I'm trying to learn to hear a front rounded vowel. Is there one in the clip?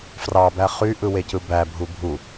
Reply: yes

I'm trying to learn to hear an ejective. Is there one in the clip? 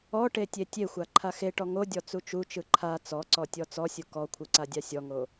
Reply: no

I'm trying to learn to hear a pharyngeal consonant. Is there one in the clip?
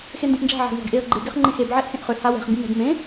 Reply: yes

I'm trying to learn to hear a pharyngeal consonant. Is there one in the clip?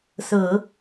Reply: no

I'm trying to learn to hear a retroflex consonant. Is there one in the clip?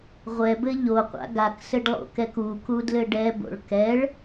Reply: yes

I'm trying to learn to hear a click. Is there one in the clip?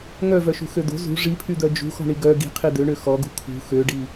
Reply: no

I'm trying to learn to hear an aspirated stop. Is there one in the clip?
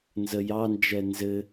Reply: no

